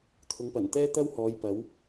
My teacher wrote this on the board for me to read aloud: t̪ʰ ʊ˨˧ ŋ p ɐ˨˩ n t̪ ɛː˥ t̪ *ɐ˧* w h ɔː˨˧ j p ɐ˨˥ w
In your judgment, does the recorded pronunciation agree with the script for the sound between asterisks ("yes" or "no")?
no